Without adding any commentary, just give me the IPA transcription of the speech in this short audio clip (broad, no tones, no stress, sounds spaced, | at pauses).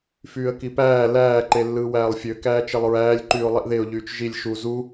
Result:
f yː ə̯ k i p æː l æː ǃ e lː ɯː w æː lˠ fʲ ø k æː t͡ʃ e lˠ ɹ æː lʲ ǃ yː ʊ̯ lˠ i ʔ ð e ʊ̯ ʎ yː t͡ʃ ʒ i lʲ ʃ u z u